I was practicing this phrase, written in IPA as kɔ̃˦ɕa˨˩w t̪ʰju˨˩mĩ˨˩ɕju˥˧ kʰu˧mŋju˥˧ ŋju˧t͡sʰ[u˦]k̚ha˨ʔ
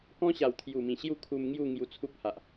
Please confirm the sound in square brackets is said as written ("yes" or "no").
yes